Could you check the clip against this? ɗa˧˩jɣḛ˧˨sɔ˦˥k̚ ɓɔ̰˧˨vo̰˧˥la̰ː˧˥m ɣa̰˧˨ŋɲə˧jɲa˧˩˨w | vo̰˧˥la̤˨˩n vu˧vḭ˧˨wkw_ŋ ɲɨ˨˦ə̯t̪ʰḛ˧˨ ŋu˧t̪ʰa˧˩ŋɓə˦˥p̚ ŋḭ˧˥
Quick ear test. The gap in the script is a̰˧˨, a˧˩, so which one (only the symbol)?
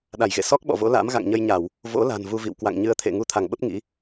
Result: a̰˧˨